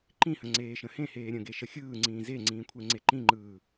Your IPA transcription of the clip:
ǃĩhə̃ ŋ͡ǀeːʃə̃hẽheː ɾʲə̃ɡe ʃəxʲɯːŋ͡ǀĩː zeŋ͡ǀĩː kʷʰeŋ͡ǀeǃĩŋ͡ǃɯː

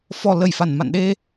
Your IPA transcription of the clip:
fɔ˨˩ lə˧˩jfa˧˩nma̰˧˨nɗe˧

